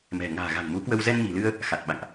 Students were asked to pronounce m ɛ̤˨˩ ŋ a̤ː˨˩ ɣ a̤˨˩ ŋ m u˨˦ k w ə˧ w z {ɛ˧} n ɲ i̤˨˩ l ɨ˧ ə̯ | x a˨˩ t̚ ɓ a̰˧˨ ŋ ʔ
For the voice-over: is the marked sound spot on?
yes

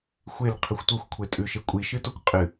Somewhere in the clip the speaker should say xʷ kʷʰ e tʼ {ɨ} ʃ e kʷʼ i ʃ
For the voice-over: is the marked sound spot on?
no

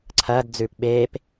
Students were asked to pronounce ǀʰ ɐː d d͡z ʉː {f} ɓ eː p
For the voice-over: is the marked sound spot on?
no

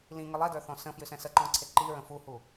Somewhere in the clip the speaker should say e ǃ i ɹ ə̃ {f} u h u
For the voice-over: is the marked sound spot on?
yes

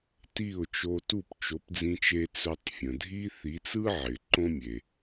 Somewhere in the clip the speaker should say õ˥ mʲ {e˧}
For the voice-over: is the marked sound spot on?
no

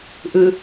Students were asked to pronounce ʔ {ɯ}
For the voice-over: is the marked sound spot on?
yes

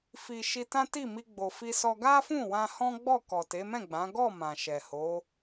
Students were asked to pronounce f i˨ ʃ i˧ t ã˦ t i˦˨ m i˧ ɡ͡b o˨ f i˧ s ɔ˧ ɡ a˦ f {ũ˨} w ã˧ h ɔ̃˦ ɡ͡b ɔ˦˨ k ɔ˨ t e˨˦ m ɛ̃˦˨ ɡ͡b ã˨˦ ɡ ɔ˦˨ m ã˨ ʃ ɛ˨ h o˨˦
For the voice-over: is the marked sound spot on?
no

